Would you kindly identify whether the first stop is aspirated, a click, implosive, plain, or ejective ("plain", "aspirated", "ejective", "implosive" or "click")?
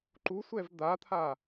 click